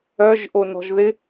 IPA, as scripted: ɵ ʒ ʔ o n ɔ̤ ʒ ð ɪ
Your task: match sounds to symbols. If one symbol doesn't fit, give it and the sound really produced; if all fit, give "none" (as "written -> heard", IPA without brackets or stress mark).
ɵ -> œ